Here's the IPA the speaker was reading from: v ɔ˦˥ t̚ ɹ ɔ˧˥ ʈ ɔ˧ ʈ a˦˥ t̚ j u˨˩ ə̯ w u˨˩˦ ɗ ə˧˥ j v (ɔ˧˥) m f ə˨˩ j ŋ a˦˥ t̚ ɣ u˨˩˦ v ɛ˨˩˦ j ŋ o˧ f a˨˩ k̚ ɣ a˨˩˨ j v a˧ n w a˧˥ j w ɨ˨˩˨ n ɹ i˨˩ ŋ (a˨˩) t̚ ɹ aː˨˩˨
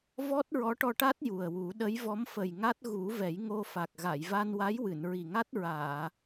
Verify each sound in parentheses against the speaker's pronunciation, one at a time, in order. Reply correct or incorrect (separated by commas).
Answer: correct, incorrect